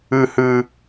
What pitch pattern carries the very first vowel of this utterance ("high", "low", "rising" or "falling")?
high